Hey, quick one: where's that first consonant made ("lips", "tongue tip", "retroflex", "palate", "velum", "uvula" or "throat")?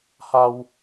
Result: throat